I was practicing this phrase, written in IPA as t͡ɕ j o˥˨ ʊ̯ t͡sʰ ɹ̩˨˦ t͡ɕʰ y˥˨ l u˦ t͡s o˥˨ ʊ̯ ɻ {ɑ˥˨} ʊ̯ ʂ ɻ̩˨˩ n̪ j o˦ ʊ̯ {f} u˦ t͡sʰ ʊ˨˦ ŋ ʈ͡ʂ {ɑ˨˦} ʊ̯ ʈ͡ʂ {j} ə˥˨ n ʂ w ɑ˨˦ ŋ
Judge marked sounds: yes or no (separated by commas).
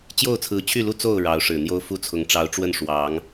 no, yes, yes, no